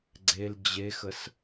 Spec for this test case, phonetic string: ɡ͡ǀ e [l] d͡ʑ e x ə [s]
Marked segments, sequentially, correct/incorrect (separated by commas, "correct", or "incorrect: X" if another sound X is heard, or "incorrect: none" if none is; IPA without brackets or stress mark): correct, correct